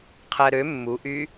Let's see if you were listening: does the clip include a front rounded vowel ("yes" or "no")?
yes